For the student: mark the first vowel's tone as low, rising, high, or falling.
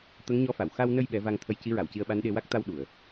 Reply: rising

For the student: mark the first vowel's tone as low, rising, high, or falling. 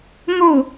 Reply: falling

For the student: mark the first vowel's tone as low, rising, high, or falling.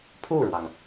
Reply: falling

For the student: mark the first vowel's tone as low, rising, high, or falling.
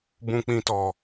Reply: low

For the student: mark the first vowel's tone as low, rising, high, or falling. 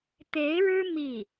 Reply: rising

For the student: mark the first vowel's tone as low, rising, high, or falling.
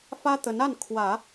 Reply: high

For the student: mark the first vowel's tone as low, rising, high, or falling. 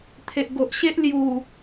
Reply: low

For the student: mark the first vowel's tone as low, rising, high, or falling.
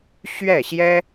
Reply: falling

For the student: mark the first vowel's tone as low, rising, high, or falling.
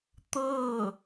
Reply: falling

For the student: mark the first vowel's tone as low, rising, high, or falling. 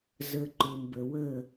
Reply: low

